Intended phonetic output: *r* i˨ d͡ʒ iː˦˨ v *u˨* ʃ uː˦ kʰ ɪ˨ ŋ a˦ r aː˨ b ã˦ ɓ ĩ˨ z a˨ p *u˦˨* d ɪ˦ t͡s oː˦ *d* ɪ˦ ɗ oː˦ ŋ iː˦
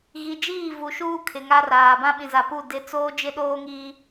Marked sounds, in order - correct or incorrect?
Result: incorrect: ɣ, correct, correct, incorrect: d͡ʒ

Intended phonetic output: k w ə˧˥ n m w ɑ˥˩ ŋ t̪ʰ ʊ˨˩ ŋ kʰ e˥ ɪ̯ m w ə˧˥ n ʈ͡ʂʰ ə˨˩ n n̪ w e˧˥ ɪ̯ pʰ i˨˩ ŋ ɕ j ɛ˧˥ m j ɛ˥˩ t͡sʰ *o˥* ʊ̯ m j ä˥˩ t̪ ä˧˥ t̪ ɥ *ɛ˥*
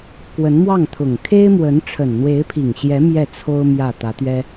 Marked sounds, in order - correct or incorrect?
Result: correct, correct

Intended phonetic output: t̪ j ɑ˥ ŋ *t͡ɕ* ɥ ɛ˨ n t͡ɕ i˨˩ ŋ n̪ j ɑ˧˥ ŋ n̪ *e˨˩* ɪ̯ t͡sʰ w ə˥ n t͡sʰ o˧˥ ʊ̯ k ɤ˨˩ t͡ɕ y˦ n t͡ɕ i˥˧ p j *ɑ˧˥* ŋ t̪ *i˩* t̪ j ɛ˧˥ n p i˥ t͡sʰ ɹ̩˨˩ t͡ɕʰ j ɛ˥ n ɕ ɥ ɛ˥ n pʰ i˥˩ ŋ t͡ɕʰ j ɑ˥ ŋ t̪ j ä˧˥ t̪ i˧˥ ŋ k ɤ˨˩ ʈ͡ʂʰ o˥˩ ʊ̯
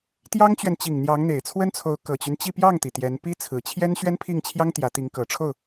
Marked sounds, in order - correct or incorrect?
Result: correct, correct, incorrect: ɑ˥˩, correct

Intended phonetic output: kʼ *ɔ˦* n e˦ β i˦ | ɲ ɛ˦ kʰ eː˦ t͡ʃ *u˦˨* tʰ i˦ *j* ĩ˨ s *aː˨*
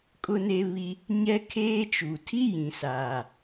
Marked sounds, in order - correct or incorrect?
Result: incorrect: ʊ˦, incorrect: u˨, correct, correct

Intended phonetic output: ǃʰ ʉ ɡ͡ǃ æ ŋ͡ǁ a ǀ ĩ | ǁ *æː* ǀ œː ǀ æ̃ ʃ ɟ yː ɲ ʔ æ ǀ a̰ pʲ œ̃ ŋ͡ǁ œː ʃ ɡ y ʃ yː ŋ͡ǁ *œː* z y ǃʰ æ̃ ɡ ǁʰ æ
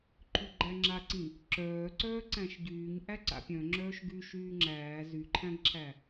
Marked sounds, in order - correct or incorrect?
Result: incorrect: œː, incorrect: æː

